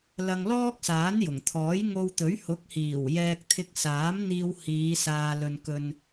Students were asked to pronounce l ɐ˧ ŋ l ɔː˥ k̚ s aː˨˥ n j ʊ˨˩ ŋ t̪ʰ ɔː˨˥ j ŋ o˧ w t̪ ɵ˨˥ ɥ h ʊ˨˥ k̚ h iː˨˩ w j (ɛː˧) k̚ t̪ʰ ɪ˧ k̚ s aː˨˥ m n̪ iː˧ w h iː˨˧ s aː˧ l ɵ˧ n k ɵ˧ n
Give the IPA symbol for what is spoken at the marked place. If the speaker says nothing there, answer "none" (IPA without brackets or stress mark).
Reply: ɛː˧